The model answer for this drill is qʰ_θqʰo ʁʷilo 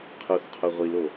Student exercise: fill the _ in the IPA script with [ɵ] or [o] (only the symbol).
o